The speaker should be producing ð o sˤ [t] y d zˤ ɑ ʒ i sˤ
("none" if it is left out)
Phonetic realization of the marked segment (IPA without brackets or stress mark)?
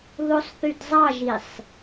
θ